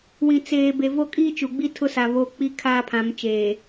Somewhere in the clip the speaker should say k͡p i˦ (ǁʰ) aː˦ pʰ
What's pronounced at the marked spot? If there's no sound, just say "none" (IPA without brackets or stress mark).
kʰ